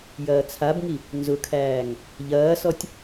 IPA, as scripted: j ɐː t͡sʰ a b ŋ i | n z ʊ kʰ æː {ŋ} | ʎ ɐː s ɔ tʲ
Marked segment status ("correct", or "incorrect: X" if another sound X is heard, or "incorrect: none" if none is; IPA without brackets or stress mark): correct